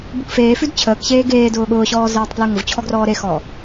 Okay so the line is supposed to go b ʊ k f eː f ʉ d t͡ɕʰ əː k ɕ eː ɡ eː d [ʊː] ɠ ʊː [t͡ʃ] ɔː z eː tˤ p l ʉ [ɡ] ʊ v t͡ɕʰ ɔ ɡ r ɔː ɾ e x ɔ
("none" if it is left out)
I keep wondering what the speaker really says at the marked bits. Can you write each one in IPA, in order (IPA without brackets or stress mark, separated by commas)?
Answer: ʊː, ɕ, ŋ